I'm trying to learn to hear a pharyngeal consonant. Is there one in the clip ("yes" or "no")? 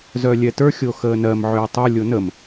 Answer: yes